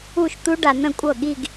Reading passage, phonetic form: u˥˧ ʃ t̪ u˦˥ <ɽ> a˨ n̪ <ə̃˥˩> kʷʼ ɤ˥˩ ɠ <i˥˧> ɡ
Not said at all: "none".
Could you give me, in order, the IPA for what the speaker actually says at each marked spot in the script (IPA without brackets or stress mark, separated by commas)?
ɖ, ə̃˥˩, i˥˧